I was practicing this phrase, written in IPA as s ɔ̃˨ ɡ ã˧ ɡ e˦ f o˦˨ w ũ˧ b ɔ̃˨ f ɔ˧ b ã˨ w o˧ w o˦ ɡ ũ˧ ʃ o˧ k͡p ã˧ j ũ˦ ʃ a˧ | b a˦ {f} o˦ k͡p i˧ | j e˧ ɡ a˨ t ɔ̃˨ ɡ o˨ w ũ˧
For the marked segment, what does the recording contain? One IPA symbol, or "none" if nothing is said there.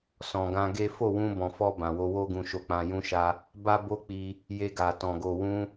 b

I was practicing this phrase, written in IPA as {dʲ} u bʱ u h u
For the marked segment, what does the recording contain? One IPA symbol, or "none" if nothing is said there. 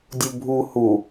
dʲ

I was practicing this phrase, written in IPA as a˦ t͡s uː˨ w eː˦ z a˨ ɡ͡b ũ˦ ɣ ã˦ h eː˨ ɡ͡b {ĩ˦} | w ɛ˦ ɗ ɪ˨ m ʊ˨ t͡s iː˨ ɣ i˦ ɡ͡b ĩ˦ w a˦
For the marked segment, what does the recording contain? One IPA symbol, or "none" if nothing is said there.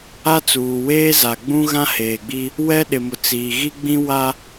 i˦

